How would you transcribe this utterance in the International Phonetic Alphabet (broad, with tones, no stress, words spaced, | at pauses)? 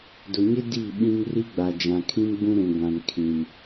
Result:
dʊ˨ɲɪ˦ di˦˨ ɓĩ˦ŋ ri˦ɡ͡ba˨ d͡ʒã˨kʰĩ˦mɡ͡bũ˦ ɾũ˨ɡʷã˨n kʰĩ˨m